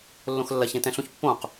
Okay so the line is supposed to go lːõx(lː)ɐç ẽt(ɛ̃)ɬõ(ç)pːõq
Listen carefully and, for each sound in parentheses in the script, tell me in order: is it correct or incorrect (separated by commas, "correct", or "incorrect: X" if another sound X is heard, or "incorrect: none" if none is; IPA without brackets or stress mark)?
correct, correct, correct